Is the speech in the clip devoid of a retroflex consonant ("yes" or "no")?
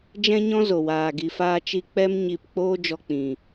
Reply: yes